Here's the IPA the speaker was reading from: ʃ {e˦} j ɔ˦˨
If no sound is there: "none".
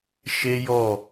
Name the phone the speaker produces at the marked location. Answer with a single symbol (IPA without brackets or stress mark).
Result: e˦